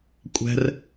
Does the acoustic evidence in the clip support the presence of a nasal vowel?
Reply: no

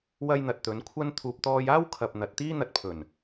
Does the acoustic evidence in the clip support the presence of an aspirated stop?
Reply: yes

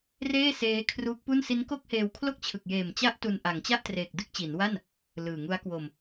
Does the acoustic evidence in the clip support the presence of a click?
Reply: no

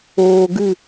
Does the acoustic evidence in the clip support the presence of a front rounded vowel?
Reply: no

